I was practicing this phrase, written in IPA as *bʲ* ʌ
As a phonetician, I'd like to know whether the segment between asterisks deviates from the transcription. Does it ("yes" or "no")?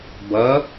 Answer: yes